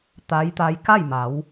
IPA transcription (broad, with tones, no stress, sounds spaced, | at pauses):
t̪ a˧˥ j t̪ a˧˥ j k a˥˨ j m a˩˧ w